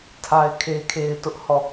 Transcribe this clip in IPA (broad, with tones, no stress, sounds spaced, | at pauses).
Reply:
tʰ a˦ ɪ̯ kʰ e˦ kʰ e˦ ɪ̯ t ʊ˦ ʔ h ɔ˦˨